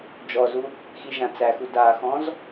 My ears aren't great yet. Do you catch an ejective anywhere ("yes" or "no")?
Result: no